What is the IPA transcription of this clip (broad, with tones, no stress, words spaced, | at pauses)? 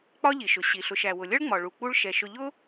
k͡pɒ˥ʎi˩ʃʊ˩ ɕi˩ɬʊ˨ʃ æ˩wʊ˩lʲʌ˥ɭŋ͡mɒ˩ ɭu˩k͡pu˦ɭ ʃɛ˩ʃʊ˨ʎʊ˥